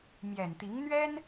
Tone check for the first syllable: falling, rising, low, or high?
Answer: low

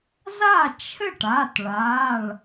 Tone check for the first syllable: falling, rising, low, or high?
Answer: falling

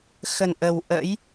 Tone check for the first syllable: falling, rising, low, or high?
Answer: low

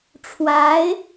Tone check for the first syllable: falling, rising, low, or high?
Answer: rising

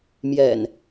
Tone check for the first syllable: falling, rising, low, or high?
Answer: low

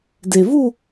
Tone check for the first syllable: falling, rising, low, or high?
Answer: low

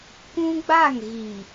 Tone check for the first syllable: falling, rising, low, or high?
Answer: high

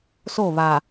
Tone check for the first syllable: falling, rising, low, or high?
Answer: falling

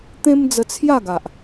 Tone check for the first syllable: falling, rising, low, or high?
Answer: high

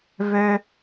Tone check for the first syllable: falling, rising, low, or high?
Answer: high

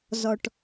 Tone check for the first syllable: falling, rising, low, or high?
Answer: low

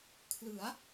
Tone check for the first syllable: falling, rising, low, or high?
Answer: rising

